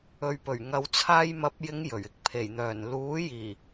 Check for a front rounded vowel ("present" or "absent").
present